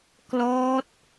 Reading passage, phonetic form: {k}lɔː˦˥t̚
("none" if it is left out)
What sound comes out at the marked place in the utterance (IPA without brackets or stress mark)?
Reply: k